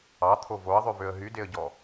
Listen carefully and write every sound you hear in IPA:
ɑt̪ʰo voə̯ðˤʉvøə̯ ɦydeə̯ɟɔ

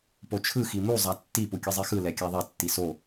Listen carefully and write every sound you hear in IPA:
pot͡ʃʰɯ ximu zˤatːi pukʲɯzˤixɯ lɛkʲaðˤɛ tːiso

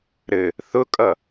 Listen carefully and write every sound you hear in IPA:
ɾɘ | θʊkʼʌ

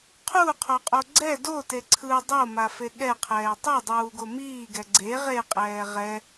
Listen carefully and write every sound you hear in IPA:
qʰuqʰoqʼo ɡ͡ǀɛ dote ǀʰɯ dˤomafe ɠɛqʰɛː tˤedˤuːɡo miːɡɛ ɡ͡ǀe ʁeqʼɛː ʁɛ

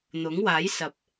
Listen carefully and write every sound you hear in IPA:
n̪ʊ˨˥ŋwaː˨˥jsɐ˨p̚

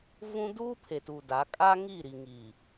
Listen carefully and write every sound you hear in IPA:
vũ˦ duː˦pʰe˨ tu˨da˨˦ kʼa˦ŋi˦˨ ɾi˨ŋi˨

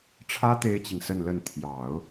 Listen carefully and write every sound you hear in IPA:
ʈ͡ʂʰä˥ t̪e˥ɪ̯t͡ɕi˨ŋsə˥˧nlə˥˩n t̪ʰjɑ˨˩˦ʊ̯

